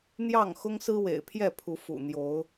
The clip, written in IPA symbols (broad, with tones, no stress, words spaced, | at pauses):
n̪jɑ˥˨ŋ xʊ˦ŋsɹ̩˦wḛ˨˩ɪ̯ pʰjɛ˥˨pʰu˨˦ fṵ˨˩n̪jo˨˦ʊ̯